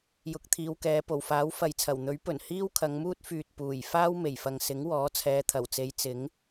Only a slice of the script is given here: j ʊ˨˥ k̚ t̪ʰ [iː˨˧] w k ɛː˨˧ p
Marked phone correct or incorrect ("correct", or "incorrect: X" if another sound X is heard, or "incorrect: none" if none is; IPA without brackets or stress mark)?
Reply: correct